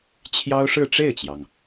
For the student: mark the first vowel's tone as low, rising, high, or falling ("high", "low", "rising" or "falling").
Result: high